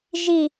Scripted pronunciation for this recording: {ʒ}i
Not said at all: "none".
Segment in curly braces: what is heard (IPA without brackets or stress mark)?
ʒ